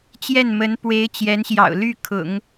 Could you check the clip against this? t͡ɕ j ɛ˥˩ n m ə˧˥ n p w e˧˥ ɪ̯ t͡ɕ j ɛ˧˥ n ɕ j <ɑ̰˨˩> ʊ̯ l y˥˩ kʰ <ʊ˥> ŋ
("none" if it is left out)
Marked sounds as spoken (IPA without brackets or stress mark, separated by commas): ɑ̰˨˩, ʊ̰˨˩˦